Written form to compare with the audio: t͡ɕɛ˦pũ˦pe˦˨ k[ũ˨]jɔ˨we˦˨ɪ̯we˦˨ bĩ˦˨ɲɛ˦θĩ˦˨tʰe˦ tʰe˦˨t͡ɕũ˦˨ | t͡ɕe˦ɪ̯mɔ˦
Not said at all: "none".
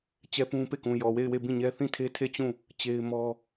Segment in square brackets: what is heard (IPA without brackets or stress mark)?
ũ˨